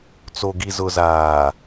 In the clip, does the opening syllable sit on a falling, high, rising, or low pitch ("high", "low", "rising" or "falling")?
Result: low